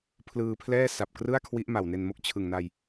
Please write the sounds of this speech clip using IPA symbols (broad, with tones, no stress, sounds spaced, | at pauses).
pʰ l ɯː˧ pʰ l ɛː˥˩ s a˨˩ p̚ k r ɯ˥˩ a̯ kʰ w i˦˥ ʔ m a˨˩ w n e˧ n m o˥˩ k̚ t͡ɕʰ ɯ˨˩ ŋ n a˧ j